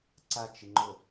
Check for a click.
present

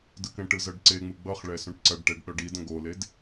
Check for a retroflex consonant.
present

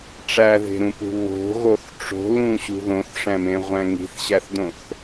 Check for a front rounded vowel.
absent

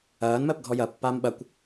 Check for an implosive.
present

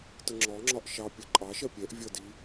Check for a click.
present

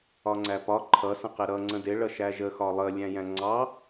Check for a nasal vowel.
present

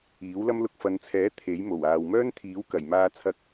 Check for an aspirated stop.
present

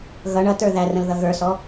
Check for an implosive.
absent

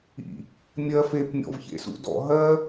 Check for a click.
absent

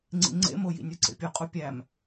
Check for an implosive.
absent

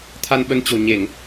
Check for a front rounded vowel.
absent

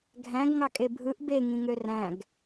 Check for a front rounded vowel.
present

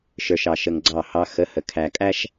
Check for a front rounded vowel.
absent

